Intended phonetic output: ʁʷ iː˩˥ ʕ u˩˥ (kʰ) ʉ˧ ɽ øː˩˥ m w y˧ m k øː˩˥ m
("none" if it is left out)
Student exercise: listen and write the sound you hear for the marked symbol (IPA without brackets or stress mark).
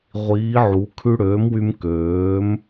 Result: kʰ